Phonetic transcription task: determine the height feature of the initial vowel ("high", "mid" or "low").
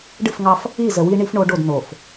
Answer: high